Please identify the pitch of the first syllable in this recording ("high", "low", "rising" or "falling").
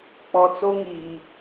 low